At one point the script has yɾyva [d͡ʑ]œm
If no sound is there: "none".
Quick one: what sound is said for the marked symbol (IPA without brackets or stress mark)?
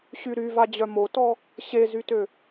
d͡ʑ